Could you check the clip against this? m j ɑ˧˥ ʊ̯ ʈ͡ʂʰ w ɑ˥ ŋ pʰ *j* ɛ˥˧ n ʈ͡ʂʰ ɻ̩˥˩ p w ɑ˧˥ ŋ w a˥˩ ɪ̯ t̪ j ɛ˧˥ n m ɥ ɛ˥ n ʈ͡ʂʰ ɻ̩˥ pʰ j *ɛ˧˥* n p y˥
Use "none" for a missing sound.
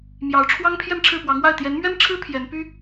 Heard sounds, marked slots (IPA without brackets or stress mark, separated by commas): j, ɛ˧˥